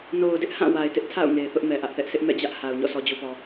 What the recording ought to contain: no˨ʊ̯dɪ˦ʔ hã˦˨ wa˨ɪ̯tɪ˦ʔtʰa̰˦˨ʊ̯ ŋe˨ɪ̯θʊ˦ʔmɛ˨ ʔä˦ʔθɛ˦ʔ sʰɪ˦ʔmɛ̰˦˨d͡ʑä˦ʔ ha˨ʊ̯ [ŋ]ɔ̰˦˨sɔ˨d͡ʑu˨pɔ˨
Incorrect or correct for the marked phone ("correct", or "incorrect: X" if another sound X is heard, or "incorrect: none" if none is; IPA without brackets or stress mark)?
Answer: incorrect: ɲ